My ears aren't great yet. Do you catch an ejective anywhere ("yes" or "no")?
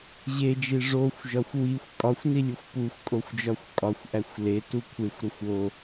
yes